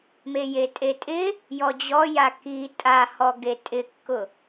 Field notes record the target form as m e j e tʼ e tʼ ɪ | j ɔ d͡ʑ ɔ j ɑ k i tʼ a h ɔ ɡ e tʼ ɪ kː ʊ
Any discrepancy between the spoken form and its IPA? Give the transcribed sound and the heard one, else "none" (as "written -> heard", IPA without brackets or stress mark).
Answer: ɑ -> a